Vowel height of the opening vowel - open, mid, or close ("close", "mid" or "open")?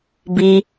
close